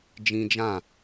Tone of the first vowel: high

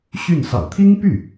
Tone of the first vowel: falling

